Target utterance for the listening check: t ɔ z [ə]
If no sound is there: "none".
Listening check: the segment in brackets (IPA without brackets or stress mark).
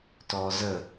ə